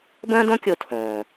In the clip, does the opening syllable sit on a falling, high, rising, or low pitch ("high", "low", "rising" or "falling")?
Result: high